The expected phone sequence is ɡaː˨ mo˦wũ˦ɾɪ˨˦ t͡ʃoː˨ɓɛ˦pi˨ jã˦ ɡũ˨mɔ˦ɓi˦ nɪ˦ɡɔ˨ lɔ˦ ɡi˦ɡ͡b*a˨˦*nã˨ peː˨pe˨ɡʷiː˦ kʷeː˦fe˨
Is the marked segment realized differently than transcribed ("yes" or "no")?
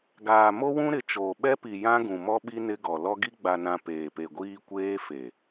yes